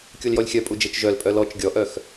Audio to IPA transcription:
kʲ u l j ɔ lʲ xʲ œ pʼ u d͡ʒ e t͡ʃ ʒ œ l pʼ œ l ɔ t͡ʃ ɡʲ ɔ ʔ œ x

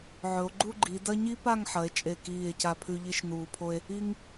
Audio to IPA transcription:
ʕ ɵ˩˧ o̯ ɡ͡ǃ u˥˧ ɡ͡ǃ i˩˧ d ɐ˥ ɲ i˥ p a˥˧ ŋ ħ ɐ˩˧ e̯ t͡ʃʼ e˧˩ k iː˧˩ e̯ c a˧ pʰ ʉ˧ ʎ i˥ ʃ n uː˧ pʰ o˥ e̯ | i˥ ŋ

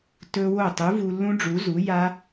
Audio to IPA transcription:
t ɵ˦˥ w o˥˩ tˤ u˨˥ v u˧ lː ũ˦˥ ɖ͡ʐ u˨˥ z u˨˥ j a˦˥

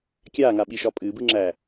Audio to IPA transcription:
kʲ aː ŋ a ɓ i ʃ ɒ pʼ ɨː b ɨː ŋ͡ǁ æː

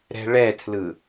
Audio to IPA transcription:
ɾ ɛ̤ ɭ ɛ tʰ l ɯ

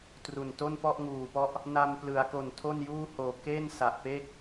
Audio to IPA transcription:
t r u˨˩ n t o˥˩ n p ɔ˥˩ ʔ ŋ uː˨˩ p ɔ˥˩ ʔ | n a˧ m p l ɯ˩˦ a̯ k o˨˩ n tʰ o˥˩ n j uː˥˩ h oː˨˩ k e˥˩ n s a˨˩ ʔ p e˥˩ k̚

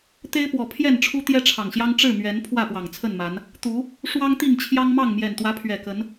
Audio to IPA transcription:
t̪ e˦ ɪ̯ p w ɔ˨˩ pʰ j ɛ˥˨ n ʈ͡ʂʰ u˦ t̪ j ɛ˦ ʈ͡ʂʰ ɑ˨˩ ŋ ɕ j ɑ˦ ŋ ʈ͡ʂ ɻ̩˥˨ m ɥ ɛ˨˦ n pʰ w ä˥˨ p w ɑ˨˩ ŋ t͡sʰ ə˥˨ n m a˨˦ n | t̪ u˨˦ | ʂ w ɑ˦ ŋ t̪ i˥˨ ŋ t͡ɕʰ j ɑ˦ ŋ m ɑ˥˨ ŋ m j ɛ˨˩ n t̪ w ä˨˦ pʰ ɥ ɛ˨˩ k ə˨˦ n

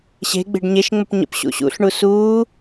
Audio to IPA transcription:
ɕ e̤ ɡ͡b e̤ ɖ ɲ e ʃ ŋ͡m ə p ɲ ə̰ p ɕ ṵ ɕ ṵ ɬ ɳ u s uː

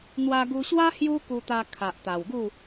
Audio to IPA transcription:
n̪ w a˧ ɡ u˧ ɕ w a˦ h j u˦ k u˧ t̪ a˧ kʰ a˨ ʔ t̪ a˨˩ w ɡ u˥˧

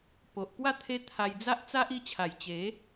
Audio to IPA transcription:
p o˨ ʔ p w a˥˧ t̪ʰ e˦ t̪ʰ a˧ j d͡z a˦ ʔ t͡s a˦ ʔ i˧ t͡ɕʰ a˨˩ j t͡ɕ e˨˦

